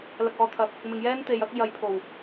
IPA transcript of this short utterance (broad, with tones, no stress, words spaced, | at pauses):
lɐ˨k̚ɔː˨t̪ʰɐ˨k̚ | mɪ˨ŋjɛː˥n t̪e˨˧jɐ˥k̚ jɐ˨jpʰo˨˩w